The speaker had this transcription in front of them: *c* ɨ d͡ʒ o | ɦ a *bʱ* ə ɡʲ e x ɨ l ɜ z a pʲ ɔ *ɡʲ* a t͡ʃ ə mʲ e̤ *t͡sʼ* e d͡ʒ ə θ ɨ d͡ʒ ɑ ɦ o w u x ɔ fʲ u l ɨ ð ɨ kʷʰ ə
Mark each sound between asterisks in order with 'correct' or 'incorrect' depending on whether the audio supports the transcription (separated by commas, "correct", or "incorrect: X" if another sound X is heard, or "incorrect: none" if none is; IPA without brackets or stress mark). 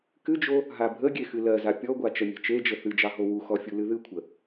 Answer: incorrect: k, correct, incorrect: ɡʷ, incorrect: t͡ʃ